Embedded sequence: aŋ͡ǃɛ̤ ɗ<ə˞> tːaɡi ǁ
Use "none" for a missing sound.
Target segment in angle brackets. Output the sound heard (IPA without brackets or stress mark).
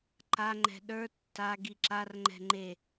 ə˞